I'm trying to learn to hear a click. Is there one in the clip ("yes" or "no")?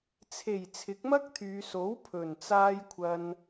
no